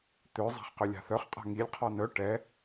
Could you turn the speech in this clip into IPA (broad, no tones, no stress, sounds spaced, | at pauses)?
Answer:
t̪ ø zˤ a̤ χ q ø lʲ a̤ θ œ χ qʼ a̤ ŋ i lʲ qʰ ɔ n œ ʈ ɛ